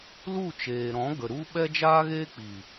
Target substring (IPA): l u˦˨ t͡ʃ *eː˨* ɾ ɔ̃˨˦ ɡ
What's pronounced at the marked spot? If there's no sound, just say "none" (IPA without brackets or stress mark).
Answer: eː˨